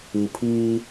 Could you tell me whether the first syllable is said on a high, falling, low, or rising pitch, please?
low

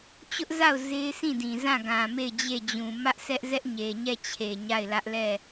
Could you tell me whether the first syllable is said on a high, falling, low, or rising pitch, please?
high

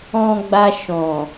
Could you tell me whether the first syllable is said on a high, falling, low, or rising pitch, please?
low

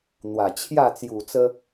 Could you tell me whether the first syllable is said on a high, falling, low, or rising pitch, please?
low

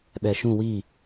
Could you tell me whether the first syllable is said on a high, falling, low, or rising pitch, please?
low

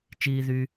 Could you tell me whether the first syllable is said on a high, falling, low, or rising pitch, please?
high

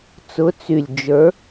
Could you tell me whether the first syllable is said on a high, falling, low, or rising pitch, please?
rising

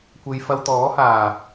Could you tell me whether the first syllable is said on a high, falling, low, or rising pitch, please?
low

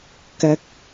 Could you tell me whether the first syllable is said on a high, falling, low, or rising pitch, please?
high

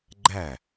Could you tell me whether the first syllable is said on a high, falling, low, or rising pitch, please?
falling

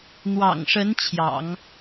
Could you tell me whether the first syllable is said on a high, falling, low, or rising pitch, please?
low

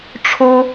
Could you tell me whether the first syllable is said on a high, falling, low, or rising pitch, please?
high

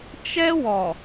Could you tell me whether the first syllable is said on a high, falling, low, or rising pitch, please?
high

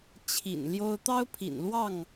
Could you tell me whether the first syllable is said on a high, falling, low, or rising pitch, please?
low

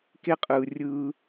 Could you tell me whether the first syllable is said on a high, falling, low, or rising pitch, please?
high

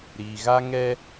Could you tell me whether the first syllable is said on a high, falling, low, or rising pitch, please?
low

